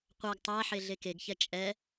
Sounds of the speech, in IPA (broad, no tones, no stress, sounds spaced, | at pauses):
qʷ æ ɡ tˤ æ ħ e ɮ e k e ɡ ç ɛ t͡ʃʼ ɛ